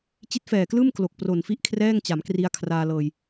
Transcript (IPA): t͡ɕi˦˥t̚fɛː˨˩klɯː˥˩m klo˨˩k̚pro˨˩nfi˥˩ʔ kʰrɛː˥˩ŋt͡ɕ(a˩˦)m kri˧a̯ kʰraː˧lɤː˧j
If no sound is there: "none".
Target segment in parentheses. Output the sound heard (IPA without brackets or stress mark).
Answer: a˩˦